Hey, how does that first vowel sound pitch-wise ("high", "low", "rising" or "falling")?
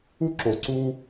high